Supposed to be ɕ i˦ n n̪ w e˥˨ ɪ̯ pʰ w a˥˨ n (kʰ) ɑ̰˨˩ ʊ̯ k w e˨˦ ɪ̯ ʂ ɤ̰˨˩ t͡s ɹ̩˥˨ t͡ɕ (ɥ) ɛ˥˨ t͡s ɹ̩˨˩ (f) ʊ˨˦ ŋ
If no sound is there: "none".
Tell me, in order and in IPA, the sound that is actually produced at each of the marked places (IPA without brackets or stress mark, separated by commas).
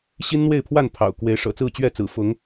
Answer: pʰ, ɥ, f